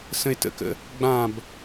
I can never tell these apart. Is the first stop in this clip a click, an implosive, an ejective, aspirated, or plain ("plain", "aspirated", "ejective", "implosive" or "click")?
plain